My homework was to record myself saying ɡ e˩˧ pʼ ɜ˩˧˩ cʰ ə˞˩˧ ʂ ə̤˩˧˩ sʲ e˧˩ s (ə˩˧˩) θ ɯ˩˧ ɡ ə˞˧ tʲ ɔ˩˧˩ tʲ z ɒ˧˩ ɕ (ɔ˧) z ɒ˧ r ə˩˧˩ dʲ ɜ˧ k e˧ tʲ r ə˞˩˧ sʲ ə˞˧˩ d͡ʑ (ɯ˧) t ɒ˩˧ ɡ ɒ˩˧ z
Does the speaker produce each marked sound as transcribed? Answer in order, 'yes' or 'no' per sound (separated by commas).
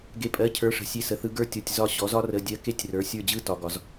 no, no, yes